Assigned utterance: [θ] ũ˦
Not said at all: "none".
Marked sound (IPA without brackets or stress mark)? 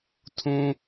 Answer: tʰ